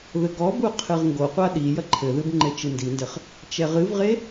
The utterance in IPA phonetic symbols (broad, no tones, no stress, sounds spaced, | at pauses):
ð ɘ ɡ ɔ b u qʰ ɨ ʁ ŋ ɡ o qʷ a ɗ i j ɐ ǃʰ ɘ ð ɨ b ŋ͡ǃ e t͡ʃ ɨ n d i n d ɘ χ | t͡ʃ ɛ ʁ ɨ v ʁ e